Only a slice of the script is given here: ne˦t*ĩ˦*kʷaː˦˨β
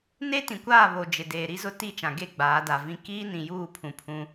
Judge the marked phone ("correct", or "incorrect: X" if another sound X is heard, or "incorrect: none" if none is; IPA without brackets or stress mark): incorrect: ĩ˨